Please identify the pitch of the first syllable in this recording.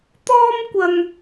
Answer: high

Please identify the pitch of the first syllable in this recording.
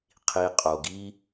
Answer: low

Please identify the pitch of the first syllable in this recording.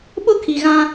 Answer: high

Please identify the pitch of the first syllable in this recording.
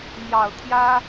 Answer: low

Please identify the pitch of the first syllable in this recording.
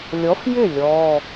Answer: rising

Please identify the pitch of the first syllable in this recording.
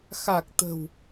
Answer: low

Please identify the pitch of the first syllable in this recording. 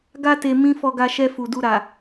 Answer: high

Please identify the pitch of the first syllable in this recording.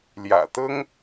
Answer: low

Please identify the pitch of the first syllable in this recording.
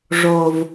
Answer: high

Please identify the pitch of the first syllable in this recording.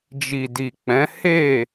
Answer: low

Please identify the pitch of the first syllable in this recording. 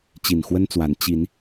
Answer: low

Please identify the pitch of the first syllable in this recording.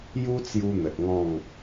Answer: high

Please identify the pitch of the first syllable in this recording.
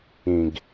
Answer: low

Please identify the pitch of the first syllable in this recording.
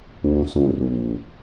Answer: low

